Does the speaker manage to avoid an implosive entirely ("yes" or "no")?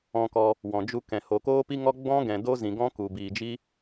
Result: yes